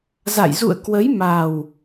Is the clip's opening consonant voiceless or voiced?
voiced